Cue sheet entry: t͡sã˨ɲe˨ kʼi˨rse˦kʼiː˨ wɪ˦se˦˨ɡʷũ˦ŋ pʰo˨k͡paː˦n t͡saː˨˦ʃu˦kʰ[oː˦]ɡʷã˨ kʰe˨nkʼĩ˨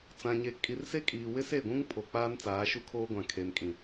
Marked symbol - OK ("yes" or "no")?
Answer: yes